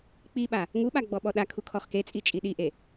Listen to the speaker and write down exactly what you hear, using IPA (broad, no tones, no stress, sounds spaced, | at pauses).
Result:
k͡p i ɓ a | ŋ u ɓ a ɡ͡b ɔ ɓ ɔ ɗ a kʰ u kʰ ɔ χ k e t͡sʼ i t͡ʃʼ i ɗ i ʔ e